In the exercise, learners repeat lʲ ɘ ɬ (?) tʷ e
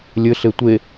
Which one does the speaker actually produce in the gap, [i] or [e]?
e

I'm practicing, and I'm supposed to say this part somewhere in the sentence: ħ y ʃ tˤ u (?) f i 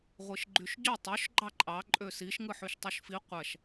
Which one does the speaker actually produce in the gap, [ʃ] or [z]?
ʃ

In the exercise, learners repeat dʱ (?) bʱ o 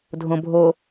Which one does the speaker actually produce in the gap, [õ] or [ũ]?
õ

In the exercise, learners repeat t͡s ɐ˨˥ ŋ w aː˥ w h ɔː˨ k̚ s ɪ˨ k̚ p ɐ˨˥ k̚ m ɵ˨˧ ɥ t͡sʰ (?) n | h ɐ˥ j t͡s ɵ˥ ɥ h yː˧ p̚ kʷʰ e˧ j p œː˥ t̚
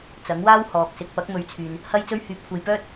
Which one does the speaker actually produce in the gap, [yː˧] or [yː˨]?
yː˨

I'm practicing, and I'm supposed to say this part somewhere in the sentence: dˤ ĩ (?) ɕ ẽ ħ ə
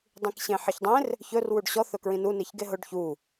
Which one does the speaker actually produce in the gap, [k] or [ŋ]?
k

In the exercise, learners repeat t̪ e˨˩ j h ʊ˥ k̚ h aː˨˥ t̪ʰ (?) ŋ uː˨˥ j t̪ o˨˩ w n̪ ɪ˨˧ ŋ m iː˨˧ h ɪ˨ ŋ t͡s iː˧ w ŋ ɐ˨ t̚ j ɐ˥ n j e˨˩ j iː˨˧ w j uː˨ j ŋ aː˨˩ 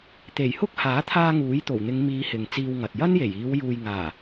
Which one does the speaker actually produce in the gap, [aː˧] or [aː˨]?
aː˧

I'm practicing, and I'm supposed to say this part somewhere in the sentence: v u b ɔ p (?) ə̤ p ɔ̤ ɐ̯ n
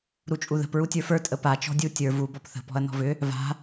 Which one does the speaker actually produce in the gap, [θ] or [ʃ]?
θ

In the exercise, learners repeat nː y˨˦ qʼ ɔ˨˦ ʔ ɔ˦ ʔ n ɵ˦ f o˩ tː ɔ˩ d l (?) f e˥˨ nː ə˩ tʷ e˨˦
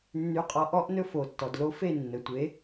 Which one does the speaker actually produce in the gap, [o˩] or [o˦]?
o˦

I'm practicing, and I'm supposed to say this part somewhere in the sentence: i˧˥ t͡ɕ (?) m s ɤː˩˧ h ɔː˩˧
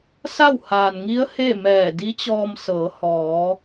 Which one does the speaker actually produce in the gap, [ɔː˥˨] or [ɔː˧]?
ɔː˧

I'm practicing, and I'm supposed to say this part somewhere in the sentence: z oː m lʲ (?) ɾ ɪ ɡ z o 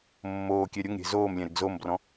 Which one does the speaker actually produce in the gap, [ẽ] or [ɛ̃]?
ɛ̃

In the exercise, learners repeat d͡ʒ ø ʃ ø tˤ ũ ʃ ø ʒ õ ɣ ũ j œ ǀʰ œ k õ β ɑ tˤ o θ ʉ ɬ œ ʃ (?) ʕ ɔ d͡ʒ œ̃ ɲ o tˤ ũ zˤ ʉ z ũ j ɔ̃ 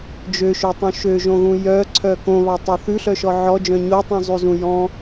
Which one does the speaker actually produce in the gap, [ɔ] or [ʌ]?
ɔ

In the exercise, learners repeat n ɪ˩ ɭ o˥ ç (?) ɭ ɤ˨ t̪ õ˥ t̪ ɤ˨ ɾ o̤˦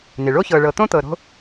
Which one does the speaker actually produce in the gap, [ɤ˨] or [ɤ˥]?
ɤ˨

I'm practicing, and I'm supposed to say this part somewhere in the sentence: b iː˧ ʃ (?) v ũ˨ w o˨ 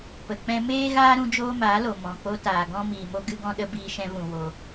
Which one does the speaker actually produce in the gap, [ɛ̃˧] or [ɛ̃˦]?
ɛ̃˧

